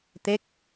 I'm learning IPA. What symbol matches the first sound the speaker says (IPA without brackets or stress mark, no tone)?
t̪